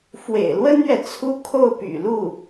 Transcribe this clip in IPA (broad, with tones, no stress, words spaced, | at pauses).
fwḛ˨˩ɪ̯lwə˥nɥɛ˨ t͡sʰu˥˧kʰo˥˩ʊ̯py̰˨˩lu˥˩